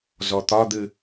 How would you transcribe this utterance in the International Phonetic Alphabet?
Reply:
z ɔ t̪ ɒ d̪ ɨ

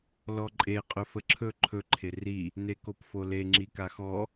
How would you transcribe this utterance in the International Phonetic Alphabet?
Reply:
l ɔ ǃʼ e qʼ ɵ f ə ǁʰ ɵ ǃʰ ɵ ǃʰ e r i | n e k o p f o l e ŋ͡ǁ i k a x ɔ

